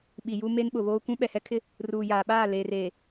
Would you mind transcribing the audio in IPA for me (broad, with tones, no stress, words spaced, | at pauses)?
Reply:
ɓi˨ju˦ me˦nɓʊ˨βoː˦ kʷũ˦ ɓɛ˨hɛ˦kʰɪ˦ | ruː˨jaː˨ɓaː˦˨ leː˨reː˨